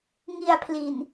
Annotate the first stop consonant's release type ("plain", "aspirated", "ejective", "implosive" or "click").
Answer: aspirated